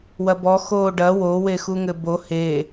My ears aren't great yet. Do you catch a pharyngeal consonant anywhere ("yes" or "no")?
no